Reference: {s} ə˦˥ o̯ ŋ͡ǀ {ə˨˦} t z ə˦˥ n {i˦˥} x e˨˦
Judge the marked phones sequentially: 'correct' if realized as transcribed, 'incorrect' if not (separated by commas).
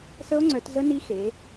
correct, incorrect, correct